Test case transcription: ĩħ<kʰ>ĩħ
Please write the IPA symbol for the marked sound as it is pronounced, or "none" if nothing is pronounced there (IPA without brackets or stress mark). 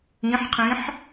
qʰ